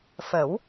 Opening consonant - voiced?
no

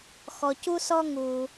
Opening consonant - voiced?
no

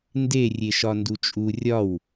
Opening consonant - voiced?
yes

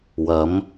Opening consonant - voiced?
yes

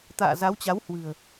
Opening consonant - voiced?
no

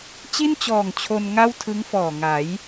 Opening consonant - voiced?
no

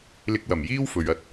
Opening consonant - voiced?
yes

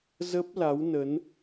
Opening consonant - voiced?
yes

